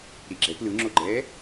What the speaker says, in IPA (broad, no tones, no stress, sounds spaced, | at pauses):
ɾ i ɡ͡ǁ ɛ p l ɯ ŋ͡ǁ o ɡ͡ǃ ɛː